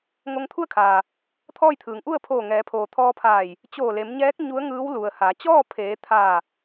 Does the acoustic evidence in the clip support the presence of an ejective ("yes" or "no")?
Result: no